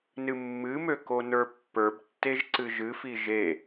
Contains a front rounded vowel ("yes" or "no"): yes